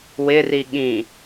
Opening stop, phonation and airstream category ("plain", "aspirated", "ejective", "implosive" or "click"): implosive